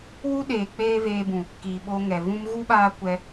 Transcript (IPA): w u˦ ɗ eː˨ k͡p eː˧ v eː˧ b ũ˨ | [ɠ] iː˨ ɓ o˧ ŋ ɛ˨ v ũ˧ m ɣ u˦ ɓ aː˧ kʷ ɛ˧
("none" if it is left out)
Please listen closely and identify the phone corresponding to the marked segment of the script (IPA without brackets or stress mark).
k